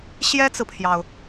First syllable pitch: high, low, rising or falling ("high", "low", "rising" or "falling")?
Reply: high